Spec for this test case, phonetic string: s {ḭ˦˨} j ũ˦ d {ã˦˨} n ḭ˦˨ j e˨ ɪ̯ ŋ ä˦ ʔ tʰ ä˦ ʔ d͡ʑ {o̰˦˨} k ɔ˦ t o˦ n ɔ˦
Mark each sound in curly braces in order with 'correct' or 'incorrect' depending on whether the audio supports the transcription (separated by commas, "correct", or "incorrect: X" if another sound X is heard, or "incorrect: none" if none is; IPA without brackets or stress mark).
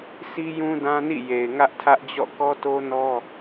incorrect: i˦, incorrect: ã˦, incorrect: ɔ̰˦˨